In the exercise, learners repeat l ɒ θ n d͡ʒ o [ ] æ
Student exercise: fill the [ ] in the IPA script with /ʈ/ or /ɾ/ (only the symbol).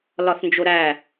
ɾ